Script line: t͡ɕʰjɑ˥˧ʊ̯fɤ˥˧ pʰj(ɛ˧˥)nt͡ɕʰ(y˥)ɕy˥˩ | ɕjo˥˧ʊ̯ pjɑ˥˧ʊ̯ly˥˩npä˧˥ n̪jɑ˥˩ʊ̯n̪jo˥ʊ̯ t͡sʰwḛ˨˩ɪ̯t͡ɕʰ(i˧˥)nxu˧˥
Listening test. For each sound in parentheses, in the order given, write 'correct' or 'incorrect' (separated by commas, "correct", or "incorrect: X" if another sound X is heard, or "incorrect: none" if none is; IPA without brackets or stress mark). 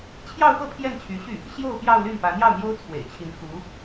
incorrect: ɛ˥˩, incorrect: y˧˥, correct